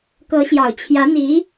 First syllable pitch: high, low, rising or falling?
rising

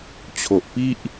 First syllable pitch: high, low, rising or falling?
low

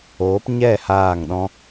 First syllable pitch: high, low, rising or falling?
rising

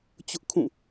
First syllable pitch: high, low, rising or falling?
high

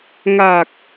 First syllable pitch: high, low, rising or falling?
low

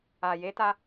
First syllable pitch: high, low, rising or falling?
low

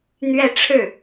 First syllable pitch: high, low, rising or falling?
falling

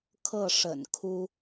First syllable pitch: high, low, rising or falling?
falling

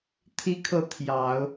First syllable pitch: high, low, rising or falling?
high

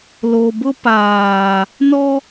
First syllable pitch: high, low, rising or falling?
low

